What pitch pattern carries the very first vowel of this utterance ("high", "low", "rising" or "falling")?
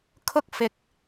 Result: high